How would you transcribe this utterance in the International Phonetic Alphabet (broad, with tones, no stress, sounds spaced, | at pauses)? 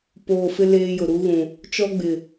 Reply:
p oː˨ f ɪ˦ l eː˦ j ʊ˨ ɾ u˦ ɣ ũ˨ | t͡ʃ ɔ˦ ɡ͡b ɪ˨